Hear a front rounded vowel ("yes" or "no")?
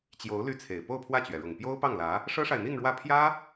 yes